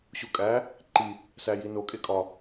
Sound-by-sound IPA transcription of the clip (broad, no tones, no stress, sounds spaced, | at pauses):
ɕ u kʼ æ | ǃ i | s æ j i n o kʼ e kʼ ɒ